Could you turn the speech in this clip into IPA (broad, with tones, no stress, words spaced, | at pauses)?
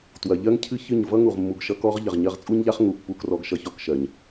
twɐ˨ʎɜ˦ŋcʰɨ˦ çɨ˦˨ɲ vʌ˦ŋu˨ʁmːu˨ɡ ʃʌ˧kɔ˦ʁ ʎɐ˨ʁɲɜ˧ʁt͡sʼu˦ɲʎa˦χ ŋu˨pːu˧krɔ˧ɡ ʃʌ˧çɔ˧kʃɜ˨ɲ